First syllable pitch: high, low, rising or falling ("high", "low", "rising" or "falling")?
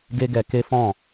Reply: high